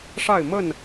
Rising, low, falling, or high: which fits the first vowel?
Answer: falling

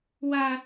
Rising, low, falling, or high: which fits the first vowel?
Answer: high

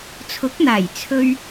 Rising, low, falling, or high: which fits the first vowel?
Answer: rising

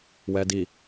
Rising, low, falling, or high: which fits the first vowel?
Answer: low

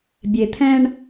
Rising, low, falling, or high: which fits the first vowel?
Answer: low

